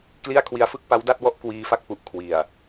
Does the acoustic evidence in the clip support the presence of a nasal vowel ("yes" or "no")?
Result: no